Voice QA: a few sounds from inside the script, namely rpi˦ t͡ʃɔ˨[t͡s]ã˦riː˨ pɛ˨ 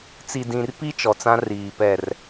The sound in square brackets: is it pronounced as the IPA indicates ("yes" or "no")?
yes